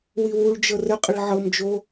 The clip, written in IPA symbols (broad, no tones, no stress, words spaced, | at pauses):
wiwuɭd͡ʒɤ rəqʼəɭ ʕɤmd͡ʒo